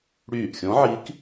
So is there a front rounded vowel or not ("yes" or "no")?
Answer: yes